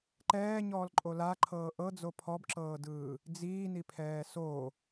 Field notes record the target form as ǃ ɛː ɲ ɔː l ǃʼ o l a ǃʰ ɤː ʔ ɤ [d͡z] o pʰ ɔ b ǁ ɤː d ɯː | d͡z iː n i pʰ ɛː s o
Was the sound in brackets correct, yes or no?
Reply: yes